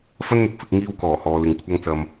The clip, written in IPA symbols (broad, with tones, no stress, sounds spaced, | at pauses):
f ɐ˥ n n̪ ɪ˨ k̚ f ɪ˧ k̚ ŋ iː˧ w k ɔː˨˩ h ɔː˨ l ɪ˨ ŋ kʷʰ ɐ˧ ŋ t͡s ɐ˨ m